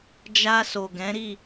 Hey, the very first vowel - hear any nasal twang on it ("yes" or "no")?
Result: no